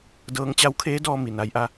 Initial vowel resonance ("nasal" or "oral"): oral